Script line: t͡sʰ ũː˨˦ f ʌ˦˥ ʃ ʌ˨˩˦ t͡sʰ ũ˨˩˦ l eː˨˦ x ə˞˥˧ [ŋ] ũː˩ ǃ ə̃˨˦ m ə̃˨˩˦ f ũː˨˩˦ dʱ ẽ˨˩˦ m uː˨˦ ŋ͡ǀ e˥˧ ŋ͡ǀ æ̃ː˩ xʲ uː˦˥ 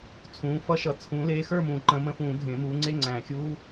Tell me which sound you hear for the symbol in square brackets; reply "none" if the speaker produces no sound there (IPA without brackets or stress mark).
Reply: m